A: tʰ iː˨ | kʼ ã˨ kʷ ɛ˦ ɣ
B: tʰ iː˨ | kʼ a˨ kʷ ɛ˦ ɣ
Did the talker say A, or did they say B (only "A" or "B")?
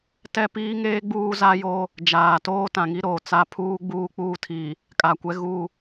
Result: B